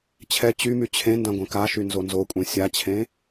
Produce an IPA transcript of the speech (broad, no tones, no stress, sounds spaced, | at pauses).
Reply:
t͡ɕʰ ɛ t͡ɕ y m y t͡ɕʰ ẽ n d ã ɡʷ ẽ k a ʃ y n z o n z o kʷʼ ẽ sʲ a t͡ɕʰ ẽ